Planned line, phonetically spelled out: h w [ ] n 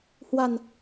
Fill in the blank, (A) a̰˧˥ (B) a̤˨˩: B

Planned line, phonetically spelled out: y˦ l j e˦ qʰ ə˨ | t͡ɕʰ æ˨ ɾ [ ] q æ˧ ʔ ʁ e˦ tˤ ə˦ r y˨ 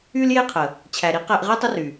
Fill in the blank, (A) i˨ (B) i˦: B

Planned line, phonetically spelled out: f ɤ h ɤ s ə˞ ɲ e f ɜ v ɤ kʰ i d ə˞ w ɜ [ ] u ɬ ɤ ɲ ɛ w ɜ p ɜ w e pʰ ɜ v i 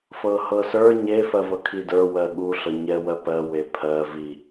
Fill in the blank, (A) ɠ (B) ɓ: A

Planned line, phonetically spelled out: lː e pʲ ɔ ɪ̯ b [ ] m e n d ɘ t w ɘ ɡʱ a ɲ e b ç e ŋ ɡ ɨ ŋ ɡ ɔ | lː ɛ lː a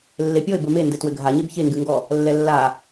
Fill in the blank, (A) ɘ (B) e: A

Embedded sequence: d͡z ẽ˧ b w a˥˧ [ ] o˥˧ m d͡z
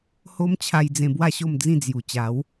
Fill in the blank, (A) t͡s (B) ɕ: B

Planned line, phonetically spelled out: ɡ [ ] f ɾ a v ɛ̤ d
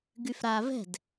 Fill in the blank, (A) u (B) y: B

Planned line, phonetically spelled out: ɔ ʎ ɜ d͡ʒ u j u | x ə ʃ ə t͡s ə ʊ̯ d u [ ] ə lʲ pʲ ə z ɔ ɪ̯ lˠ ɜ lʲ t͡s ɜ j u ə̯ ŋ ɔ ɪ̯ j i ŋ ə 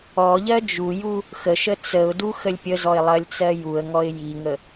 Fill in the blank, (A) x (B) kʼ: A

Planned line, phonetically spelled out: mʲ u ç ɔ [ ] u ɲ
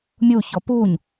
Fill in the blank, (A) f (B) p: B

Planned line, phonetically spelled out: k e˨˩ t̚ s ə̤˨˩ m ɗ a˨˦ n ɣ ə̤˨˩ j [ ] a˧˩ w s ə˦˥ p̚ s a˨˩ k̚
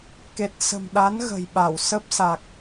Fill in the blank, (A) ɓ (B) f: A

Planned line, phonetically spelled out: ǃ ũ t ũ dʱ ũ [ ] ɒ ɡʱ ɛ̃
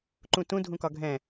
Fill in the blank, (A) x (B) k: B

